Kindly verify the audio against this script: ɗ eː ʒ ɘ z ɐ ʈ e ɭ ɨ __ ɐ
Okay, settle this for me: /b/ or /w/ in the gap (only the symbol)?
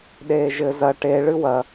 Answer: w